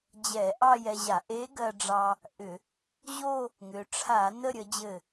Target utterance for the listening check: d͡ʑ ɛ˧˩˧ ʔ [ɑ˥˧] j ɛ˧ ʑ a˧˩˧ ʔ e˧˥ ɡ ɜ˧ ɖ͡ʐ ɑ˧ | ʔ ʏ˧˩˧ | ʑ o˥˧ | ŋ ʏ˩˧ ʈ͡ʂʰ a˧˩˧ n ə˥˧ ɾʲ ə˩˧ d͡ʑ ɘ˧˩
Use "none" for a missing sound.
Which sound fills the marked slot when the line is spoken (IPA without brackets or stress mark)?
ɑ˥˧